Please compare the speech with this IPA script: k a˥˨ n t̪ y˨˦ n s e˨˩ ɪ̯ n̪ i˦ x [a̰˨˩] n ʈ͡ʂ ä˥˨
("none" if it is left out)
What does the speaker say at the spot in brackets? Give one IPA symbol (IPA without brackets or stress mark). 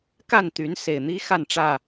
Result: a˥˨